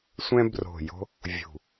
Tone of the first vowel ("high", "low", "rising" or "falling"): high